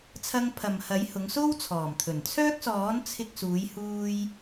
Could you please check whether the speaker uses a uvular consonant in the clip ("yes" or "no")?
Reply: no